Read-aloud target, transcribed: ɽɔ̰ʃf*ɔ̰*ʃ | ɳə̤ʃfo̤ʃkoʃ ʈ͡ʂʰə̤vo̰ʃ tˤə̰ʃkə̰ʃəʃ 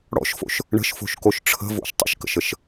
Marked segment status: incorrect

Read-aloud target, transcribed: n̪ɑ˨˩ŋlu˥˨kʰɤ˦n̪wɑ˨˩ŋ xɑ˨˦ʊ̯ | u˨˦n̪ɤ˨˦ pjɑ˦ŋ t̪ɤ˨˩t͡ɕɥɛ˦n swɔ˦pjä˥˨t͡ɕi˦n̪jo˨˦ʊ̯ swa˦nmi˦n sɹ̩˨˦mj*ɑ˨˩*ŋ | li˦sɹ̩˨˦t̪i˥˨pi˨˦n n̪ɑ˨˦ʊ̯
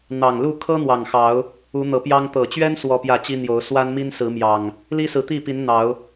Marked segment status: correct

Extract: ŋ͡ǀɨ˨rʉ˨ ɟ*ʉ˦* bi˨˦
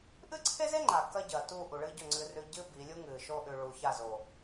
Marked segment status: incorrect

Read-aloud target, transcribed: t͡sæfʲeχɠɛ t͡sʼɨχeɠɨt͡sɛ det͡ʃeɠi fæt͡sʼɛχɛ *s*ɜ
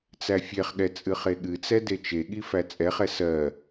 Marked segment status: correct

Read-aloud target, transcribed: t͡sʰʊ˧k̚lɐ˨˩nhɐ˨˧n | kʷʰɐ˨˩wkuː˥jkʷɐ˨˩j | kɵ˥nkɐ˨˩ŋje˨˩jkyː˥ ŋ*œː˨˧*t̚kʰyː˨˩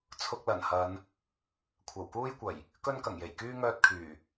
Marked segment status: incorrect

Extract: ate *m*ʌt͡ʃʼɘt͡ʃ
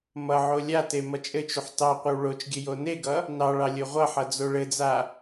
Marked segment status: correct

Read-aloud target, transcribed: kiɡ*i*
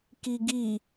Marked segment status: correct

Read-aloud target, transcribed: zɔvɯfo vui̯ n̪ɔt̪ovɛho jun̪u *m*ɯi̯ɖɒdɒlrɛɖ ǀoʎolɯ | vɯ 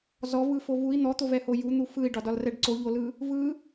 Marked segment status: incorrect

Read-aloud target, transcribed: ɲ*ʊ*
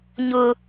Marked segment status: correct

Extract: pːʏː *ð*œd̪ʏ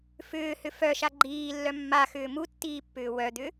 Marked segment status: incorrect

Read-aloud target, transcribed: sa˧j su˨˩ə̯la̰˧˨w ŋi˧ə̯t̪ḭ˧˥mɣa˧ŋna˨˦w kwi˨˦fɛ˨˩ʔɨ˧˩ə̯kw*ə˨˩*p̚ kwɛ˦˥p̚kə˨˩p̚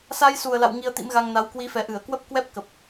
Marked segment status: incorrect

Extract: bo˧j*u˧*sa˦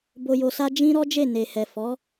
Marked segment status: incorrect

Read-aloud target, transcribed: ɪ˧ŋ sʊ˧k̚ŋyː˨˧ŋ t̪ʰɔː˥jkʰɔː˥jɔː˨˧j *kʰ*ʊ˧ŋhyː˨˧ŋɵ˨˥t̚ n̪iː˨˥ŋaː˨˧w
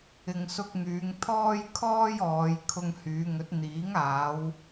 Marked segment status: correct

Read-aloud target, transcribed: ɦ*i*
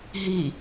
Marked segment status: correct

